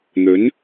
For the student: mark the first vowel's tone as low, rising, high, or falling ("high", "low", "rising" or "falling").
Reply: rising